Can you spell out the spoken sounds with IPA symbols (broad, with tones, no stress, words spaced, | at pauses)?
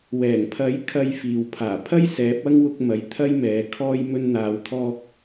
wɛː˨˩ŋpʰɐ˨˥j kʰɐ˧j fiː˨wpʰaː˨˩ pʰɐ˥j sɛː˨˥p̚ɐ˥ŋ wʊ˧k̚mɐ˨j t̪ʰɐ˥jmɛː˨˧ kʰɔː˧j mɵ˧nn̪aː˨w t̪ʰɔː˧k̚